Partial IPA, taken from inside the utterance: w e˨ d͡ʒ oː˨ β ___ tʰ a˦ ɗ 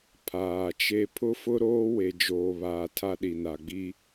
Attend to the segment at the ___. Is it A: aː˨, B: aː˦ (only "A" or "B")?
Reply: A